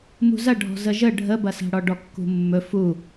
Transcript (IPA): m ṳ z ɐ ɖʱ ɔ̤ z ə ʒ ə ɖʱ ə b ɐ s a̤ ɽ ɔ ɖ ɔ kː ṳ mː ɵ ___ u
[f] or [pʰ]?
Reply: f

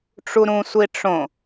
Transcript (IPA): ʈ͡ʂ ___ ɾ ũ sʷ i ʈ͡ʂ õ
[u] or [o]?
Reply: u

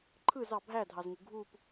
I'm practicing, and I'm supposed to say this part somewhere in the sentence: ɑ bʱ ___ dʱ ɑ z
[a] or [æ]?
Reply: æ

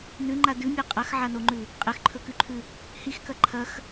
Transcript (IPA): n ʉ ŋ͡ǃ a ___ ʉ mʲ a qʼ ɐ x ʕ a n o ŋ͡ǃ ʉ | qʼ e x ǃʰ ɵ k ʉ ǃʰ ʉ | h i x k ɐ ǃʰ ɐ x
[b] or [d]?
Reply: d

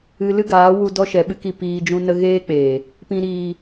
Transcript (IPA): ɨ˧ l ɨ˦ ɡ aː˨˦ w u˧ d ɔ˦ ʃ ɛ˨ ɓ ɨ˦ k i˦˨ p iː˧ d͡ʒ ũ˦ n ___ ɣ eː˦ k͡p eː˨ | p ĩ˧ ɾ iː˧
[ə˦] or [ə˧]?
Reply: ə˦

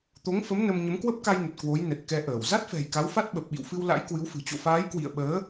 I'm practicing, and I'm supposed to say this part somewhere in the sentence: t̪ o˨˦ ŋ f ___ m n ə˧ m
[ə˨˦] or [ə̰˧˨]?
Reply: ə˨˦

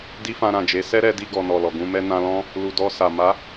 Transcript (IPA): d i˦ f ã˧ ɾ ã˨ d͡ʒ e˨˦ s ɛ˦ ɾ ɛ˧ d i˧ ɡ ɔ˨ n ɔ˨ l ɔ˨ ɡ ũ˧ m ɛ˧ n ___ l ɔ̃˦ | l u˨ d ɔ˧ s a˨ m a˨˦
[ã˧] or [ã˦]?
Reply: ã˧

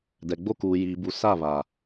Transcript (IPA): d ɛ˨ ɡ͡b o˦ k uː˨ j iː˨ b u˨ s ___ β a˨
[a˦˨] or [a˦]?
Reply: a˦˨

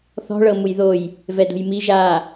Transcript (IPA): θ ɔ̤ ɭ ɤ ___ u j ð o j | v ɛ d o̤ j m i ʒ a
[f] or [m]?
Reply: m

